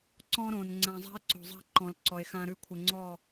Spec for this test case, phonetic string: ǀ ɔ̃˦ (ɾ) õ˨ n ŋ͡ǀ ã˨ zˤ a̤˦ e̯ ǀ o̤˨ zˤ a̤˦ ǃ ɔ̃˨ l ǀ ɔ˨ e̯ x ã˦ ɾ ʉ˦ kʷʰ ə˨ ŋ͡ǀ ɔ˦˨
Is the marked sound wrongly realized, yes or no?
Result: no